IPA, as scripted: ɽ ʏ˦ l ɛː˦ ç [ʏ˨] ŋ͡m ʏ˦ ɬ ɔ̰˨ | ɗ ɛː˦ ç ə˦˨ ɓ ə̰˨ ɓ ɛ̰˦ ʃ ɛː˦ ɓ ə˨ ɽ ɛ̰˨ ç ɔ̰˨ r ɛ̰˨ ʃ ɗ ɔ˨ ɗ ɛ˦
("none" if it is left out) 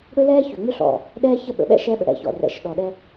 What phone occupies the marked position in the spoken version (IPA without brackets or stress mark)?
ʏ˨